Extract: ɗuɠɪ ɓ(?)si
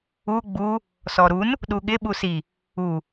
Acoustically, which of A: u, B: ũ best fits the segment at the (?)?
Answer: A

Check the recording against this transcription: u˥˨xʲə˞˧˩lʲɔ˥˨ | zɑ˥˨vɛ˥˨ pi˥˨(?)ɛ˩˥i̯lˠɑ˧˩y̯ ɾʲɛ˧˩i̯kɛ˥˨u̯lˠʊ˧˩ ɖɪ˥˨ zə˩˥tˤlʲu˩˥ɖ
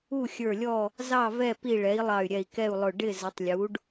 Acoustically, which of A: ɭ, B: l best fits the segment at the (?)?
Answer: A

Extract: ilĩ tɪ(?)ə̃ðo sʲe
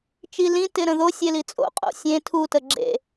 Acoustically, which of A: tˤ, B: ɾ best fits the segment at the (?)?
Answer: B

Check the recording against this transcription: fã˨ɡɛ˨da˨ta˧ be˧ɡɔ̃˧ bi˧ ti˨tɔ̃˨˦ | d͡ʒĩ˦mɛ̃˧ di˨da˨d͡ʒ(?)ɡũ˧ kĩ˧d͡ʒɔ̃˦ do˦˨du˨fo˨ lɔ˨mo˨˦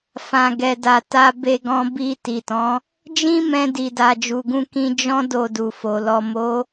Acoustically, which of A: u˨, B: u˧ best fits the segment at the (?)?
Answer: A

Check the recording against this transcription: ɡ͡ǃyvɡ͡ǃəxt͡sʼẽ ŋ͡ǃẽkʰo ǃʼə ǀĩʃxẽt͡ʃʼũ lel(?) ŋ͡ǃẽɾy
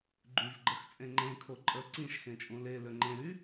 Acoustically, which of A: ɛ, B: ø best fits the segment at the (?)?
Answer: B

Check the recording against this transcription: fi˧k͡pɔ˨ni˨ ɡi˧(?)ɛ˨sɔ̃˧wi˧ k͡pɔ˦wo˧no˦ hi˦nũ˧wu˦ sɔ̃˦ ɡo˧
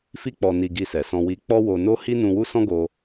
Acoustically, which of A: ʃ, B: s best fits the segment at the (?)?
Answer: B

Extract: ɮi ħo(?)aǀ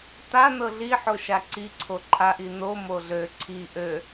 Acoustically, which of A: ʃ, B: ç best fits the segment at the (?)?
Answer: A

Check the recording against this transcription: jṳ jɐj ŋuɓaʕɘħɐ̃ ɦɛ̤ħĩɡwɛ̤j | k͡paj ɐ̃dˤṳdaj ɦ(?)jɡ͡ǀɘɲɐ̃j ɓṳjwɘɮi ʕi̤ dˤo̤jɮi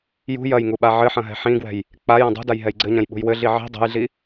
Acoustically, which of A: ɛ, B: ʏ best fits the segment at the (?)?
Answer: A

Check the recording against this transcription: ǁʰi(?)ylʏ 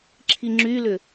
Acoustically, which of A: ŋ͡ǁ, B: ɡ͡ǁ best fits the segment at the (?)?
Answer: A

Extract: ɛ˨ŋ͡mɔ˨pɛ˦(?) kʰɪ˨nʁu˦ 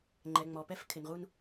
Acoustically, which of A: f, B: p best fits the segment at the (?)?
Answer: A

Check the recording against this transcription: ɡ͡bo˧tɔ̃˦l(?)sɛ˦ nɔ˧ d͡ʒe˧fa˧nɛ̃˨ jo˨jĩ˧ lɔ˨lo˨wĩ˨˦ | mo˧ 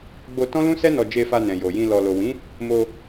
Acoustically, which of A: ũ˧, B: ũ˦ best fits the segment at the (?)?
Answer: B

